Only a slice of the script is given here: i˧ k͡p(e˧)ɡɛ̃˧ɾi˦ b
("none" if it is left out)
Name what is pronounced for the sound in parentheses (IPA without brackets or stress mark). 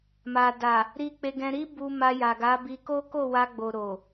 e˧